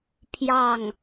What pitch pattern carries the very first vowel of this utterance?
falling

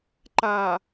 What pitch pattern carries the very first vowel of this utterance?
low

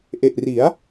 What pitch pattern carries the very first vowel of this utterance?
low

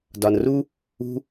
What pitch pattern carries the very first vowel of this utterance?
low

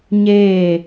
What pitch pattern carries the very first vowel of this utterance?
falling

